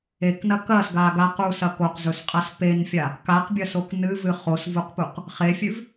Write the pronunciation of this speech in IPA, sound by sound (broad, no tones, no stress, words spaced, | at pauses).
eknɐ kɐsɡa ɡaqusɐ koqzɵsqʼas penfʲa | kaqbʲɐsok nɨvɨ χosvuqpuq | χefʲʉv